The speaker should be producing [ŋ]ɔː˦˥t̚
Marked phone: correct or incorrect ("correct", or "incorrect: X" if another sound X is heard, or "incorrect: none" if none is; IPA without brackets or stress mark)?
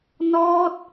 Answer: incorrect: n